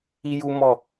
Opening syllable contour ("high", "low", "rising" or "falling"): high